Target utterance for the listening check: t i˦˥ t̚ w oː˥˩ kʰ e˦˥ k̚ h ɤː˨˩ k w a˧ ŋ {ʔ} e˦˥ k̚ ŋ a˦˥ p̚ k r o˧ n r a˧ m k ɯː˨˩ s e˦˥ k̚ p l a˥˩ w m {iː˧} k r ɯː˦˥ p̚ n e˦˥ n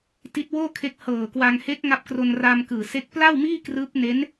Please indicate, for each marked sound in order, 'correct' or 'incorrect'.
incorrect: h, incorrect: iː˥˩

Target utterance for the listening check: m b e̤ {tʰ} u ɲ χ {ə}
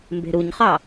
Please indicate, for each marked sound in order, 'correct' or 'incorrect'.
incorrect: ɾ, incorrect: ɑ

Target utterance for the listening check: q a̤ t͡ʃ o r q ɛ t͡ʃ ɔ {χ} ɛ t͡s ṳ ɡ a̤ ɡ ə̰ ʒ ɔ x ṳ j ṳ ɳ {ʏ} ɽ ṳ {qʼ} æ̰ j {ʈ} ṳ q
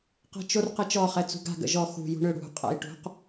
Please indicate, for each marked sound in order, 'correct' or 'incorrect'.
correct, correct, correct, correct

